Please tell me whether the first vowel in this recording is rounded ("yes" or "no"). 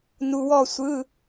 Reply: yes